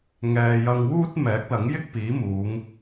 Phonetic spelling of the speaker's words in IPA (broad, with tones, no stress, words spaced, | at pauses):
ŋɛː˨jɐ˧ŋwuː˥t̚mɛː˨˥k̚ lɐ˨˥ŋjɪ˥k̚piː˨˥muː˨˧ŋ